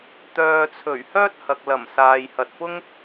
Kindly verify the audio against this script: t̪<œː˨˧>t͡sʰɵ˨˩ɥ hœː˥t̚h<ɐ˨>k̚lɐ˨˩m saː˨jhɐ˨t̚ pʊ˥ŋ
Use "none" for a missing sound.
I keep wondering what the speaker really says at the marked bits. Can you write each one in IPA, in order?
œː˨, ɐ˨

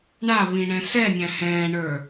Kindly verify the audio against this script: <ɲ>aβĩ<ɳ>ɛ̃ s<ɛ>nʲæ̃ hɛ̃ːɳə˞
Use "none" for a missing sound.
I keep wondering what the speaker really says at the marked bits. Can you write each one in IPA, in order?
ɳ, ɳ, ɛ

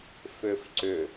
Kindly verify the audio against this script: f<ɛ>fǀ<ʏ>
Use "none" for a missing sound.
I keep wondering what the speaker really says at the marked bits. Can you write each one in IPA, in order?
ʏ, ʏ

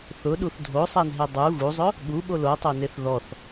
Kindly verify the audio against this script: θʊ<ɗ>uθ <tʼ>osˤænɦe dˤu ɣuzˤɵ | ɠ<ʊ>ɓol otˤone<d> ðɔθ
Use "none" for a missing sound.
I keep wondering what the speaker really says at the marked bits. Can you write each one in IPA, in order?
ɗ, dʱ, u, θ

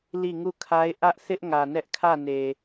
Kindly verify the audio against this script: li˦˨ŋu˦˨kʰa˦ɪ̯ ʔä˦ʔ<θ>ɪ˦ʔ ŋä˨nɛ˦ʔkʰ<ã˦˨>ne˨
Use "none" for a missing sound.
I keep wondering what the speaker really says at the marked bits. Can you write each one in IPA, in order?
θ, ä˦˨

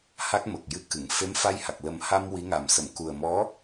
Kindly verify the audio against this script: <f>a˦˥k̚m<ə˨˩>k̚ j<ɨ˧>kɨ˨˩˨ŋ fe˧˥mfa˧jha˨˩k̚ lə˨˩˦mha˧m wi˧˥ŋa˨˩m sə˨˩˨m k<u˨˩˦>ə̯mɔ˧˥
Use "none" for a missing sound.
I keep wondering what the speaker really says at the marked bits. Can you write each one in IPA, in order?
h, ə˨˩, ɨ˧˥, u˨˩

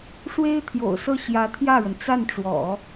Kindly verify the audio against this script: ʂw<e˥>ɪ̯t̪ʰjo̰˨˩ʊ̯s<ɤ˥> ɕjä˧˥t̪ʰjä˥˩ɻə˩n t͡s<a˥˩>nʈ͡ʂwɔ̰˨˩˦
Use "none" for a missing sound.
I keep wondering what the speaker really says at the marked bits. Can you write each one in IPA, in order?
e˥, ɤ˥˩, a˥˩

